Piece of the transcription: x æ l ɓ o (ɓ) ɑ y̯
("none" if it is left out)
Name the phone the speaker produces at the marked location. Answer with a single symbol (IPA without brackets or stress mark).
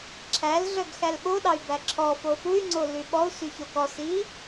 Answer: ɗ